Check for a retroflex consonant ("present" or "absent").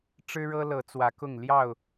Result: present